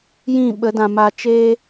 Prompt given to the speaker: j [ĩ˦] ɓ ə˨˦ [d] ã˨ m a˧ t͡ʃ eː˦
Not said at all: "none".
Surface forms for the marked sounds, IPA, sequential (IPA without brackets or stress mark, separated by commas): ĩ˦˨, d